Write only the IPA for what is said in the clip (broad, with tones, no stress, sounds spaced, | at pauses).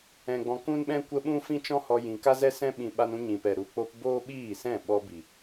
ɛ̃˨ ɡ͡b ɔ̃˨ k ũ˦ n ɓ ɛ̃˦ kʷ ə˧ ɓ ũ˦ f ĩ˦ t͡ʃ ɔ̃˦ h ɔ˧ j ĩ˨ k a˦ z ɛ˦ s ɛ̃˧ ɓ ĩ˨ ɓ a˧ n ũ˧ ɲ ĩ˨ p ɛ˨ ɾ u˨ k͡p o˧ p b oː˦ ɓ iː˦˨ s ɛ̃˦˨ ɓ ɔ˧ b i˨